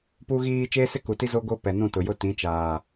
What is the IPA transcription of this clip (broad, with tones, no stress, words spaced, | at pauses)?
pu˦ɣiː˦ t͡ʃeː˦sɪ˦ku˨ti˦ zo˦ ɡo˦ pɛ˨nũ˦˨tʊ˨jʊ˦ tĩ˨˦t͡ʃaː˨